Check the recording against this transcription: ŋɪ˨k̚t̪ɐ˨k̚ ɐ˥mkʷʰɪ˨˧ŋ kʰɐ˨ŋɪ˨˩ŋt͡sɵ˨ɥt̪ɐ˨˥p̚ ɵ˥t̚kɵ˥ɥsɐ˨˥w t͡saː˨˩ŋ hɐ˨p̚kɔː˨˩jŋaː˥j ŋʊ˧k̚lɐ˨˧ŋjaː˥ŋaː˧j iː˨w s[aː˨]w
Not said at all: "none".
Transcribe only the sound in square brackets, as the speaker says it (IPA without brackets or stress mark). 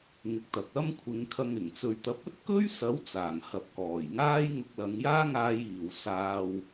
aː˧